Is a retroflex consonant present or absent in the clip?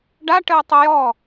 present